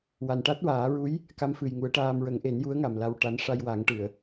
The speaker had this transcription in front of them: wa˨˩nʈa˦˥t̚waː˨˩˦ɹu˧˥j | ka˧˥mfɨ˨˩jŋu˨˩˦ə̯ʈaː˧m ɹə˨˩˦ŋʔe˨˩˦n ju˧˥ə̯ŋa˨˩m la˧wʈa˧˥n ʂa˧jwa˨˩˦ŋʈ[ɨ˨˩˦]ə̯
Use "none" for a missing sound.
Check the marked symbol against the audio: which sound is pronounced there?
ɨ˨˩˨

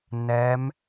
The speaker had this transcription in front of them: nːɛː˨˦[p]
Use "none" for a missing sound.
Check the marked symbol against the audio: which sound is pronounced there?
m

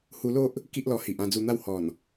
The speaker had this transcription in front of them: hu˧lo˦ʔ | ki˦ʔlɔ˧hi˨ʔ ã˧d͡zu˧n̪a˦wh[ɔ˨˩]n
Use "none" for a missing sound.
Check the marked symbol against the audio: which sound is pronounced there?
ɔ˨˩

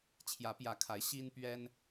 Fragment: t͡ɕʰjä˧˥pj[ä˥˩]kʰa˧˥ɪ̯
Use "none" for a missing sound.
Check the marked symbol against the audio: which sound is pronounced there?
ä˧˥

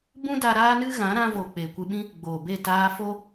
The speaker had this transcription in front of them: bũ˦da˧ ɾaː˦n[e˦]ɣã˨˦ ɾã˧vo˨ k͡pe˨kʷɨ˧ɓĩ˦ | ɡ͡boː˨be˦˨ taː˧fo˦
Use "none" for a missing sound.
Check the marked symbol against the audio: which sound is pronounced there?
ɨ˦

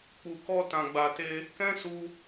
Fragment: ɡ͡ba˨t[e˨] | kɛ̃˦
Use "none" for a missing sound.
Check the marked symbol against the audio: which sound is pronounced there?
e˧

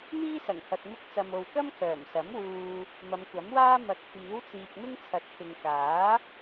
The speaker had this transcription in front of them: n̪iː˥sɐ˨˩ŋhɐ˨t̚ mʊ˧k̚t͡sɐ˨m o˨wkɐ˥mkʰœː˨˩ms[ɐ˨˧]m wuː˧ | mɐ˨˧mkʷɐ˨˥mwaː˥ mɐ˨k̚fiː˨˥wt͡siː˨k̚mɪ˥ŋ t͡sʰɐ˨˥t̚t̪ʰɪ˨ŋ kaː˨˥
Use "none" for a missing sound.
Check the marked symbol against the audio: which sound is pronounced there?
ɐ˨˥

